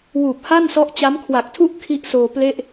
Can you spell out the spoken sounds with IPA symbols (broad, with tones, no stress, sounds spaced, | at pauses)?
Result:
w uː˨˩ p̚ h a˥˩ n s ɔ˦˥ ʔ t͡ɕ a˦˥ m kʰ w a˨˩ k̚ tʰ u˥˩ ʔ kʰ i˥˩ ʔ s oː˧ p l e˥˩ ʔ